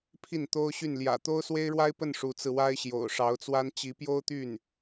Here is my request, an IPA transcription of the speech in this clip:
pʰ i˥˩ n t̪ o˥ ʊ̯ ɕ y˥˩ n l j ä̰˨˩ t̪ o˥ ʊ̯ s w e˥ ɪ̯ ɻ w a˥ ɪ̯ p ə˥˩ n ʂ u˧˥ t͡s ɹ̩˧ w a˥ ɪ̯ ɕ j o̰˨˩ ʊ̯ ʂ ɑ˧˥ ʊ̯ t͡s w a˥ n t͡ɕ i˧˥ p j o˥ ʊ̯ t̪ y˥˩ n

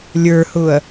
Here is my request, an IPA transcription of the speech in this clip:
lʲ ə˞ h ʊː ɐ̯

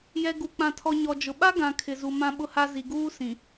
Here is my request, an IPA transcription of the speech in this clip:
j ɛ˨ ɡ u˨ k͡p ã˨ tʰ ɔ˨ ɲ ɔ˨ d͡ʒ ʊ˨ ɓ a˦ ɡ ã˨ kʰ ɪ˨ z u˨ m ã˦ ɓ ʊ˦ h a˦ z i˨ ɡ uː˦ s ĩ˨

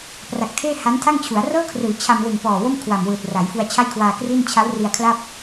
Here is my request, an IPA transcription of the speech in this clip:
p r a˨˩ k̚ tʰ eː˥˩ h a˦˥ n tʰ a˥˩ ŋ t͡ɕʰ u˩˦ a̯ r ɤː˥˩ kʰ r ɯː˩˦ t͡ɕʰ a˧ m l ɯ˨˩ ŋ p ɔː˨˩ w o˥˩ m kʰ w a˨˩ m w ɯː˨˩ t̚ r a˩˦ j f u˧ a̯ t͡ɕʰ a˥˩ j kʰ w aː˧ k r iː˥˩ n t͡ɕʰ a˦˥ w r i˧ a̯ kʰ l a˥˩ p̚

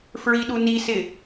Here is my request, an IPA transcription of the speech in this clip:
f ɹ i ɗ u n i s ɪ

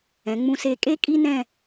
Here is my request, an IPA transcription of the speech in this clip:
ɛ̃˩˧ ŋ͡m ũ˧ s e˧˩ kʼ e˥ kʼ i˥ n ɛ̃˥˧

